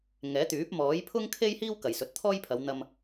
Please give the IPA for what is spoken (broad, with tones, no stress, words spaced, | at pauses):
ŋɛː˨˥t̪yː˨˥p̚ mɔː˨˥jpʰʊ˥ŋ kʰe˥jhiː˥w kɐ˨jsɵ˨˥t̚t̪ʰɔː˥jpʰɐ˨˧w n̪ɐ˧m